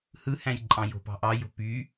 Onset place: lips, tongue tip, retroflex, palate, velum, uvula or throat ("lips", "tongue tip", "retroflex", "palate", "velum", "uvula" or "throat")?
throat